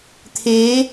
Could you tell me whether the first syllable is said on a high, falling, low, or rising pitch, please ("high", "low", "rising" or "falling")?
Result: rising